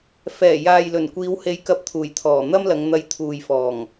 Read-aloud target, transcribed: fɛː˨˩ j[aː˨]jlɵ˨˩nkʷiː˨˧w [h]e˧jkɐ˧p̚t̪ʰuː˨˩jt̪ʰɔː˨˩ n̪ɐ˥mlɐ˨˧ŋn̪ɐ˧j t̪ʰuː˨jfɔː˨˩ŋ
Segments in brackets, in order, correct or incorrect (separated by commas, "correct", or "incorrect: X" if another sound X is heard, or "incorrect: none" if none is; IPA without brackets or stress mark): correct, correct